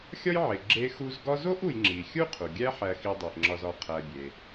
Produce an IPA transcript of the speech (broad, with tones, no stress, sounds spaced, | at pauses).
xʲ ɒ˥ j ʕ e˨ ɡ͡ǁ e˦ x u˦ z ɡ ɒ˦ z o˥ ʔ u˨ j ŋ͡ǁ i˩ xʲ u˥ qʰ u˩ ɡʲ æ˦ ħ æ˨ x i˨ dˤ i˩ ʔ ŋ͡ǁ ɒ˨ z ɒ˨ qʰ æ˨ bʲ e˩